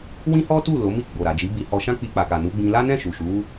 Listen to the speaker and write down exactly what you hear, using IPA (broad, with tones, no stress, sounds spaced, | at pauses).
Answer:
w ĩ˦ h ɔ˦ t u˦˨ l o˨˦ m i˦˨ ɡ͡b o˨ ɾ a˨ d͡ʒ i˨˦ b i˧ h ɔ˧ ʃ ã˦ k͡p i˧ k͡p a˨ k a˨ n u˨˦ ɡ͡b ĩ˧ l a˦ n ɛ̃˦˨ ʃ u˨ ʃ u˨˦